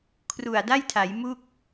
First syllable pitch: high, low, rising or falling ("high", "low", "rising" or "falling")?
low